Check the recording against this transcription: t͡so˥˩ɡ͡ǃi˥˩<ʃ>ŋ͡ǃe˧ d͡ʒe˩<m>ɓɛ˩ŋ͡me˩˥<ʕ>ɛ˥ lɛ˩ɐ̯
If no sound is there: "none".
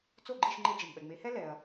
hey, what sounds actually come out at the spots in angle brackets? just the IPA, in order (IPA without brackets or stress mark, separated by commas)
ʃ, m, h